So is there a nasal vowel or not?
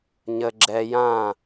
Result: yes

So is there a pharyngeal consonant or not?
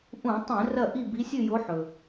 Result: yes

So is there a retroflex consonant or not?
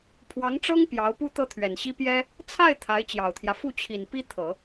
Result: yes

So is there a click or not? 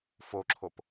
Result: yes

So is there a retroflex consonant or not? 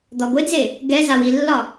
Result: no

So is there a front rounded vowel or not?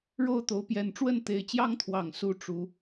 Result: no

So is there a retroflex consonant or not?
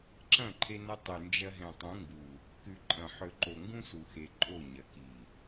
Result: no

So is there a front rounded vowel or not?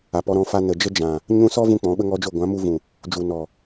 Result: no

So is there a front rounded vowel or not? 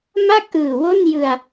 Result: no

